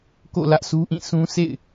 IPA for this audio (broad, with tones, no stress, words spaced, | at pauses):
ko̰˦˨ lä˦ʔsu˦ʔĩ˦˨ sũ˦ sḛ˦˨ɪ̯